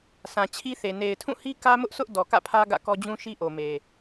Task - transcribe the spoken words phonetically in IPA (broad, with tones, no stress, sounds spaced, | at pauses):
s ã˨ t͡ɕʰ i˦ θ e˨ n e˨ ɪ̯ tʰ ũ˦˨ h i˦ k ä˦ m ʊ˦ ʔ s ʊ˦ ʔ d ɔ˨ k ä̰˦˨ pʰ ä˦ ɡ ä̰˦˨ k ɔ˦ d͡ʑ ũ˦ ʃ i˦ ʔ o˨ m e˨